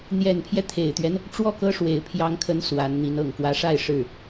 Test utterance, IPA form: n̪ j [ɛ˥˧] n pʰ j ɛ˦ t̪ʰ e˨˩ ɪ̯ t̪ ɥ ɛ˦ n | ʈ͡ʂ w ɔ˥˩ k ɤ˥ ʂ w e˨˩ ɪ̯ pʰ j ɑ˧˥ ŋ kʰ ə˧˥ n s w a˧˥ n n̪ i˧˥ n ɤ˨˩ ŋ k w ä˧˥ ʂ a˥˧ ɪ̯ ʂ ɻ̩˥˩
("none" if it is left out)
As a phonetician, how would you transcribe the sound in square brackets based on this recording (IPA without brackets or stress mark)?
ɛ˨˩